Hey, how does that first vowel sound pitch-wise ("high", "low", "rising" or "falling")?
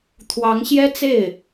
rising